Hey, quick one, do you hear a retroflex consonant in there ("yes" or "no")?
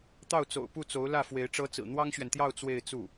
yes